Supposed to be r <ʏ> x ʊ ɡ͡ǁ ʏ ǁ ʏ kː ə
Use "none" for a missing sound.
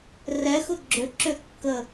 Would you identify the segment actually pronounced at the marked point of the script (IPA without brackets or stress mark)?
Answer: ɛ